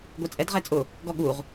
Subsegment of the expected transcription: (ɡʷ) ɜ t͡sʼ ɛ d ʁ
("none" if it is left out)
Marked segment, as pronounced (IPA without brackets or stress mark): ɡʷ